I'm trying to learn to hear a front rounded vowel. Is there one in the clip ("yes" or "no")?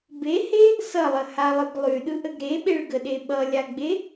yes